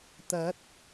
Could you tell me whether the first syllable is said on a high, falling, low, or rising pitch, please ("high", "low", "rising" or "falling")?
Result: rising